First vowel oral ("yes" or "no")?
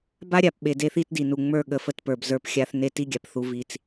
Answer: yes